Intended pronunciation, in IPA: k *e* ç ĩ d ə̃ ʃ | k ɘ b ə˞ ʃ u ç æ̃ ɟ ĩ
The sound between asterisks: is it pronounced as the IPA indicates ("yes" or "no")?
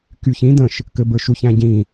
no